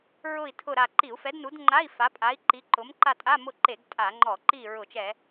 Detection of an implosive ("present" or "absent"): absent